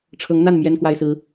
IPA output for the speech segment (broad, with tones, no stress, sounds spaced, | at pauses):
ʈ͡ʂʰ ɤ˧˥ ŋ n̪ a˥˩ n m j ɛ˥ n k w a˥ ɪ̯ s ɹ̩˥